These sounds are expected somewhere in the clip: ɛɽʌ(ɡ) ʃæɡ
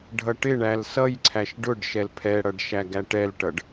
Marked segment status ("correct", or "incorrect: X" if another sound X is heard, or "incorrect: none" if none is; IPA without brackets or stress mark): incorrect: ɖ